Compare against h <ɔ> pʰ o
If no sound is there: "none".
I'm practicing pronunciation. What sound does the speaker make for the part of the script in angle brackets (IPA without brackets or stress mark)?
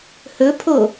ɵ